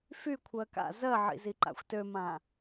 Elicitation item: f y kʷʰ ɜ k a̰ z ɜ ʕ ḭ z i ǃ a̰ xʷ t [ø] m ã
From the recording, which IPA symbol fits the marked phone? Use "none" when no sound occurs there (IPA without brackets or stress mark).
ø